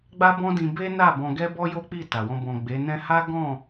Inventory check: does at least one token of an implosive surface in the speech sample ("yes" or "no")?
no